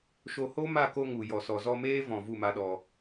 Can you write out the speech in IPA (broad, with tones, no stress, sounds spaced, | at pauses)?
ʃ o˧ h o˦ m a˦˨ k o˧ ŋ u˨ j ɔ˨ s ɔ˨ z ɔ˧ m eː˦ v ɔ̃˨ v u˦˨ m a˦ ɗ ɔ˧